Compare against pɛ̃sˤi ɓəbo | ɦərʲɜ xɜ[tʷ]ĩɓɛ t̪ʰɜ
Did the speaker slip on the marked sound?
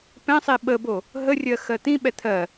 yes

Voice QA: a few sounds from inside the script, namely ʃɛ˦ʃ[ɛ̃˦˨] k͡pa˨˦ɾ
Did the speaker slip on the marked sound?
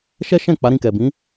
no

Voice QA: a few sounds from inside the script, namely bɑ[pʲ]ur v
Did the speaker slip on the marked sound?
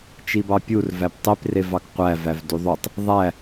no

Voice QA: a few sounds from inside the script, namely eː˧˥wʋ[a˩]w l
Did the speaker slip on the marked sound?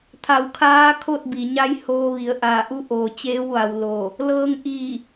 no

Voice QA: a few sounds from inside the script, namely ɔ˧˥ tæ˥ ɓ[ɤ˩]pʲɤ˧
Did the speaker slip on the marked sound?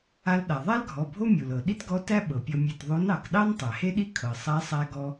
no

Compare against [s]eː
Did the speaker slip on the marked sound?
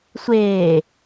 yes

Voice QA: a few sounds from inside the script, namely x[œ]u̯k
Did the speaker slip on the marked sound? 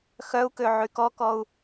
no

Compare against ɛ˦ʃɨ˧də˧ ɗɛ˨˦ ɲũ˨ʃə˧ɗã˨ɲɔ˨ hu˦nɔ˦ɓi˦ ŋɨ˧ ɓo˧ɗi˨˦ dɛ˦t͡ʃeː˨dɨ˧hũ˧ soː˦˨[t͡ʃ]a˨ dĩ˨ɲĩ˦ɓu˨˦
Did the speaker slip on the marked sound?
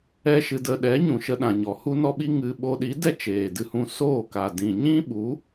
yes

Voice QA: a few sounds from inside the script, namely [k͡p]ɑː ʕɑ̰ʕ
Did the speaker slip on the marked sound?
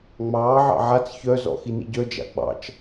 yes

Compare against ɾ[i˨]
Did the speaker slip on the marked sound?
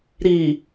no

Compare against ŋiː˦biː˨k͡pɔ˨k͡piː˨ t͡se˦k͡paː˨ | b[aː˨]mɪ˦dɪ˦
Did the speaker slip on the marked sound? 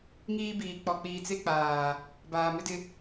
no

